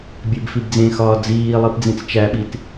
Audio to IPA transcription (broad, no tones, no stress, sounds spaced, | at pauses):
bʲ e b f i b d͡z ẽ x ɒː d͡z iː lˠ i p d͡z ĩ t͡s t͡ʃ æ ɓ i t